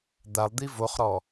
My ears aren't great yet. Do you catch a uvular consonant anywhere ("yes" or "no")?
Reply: yes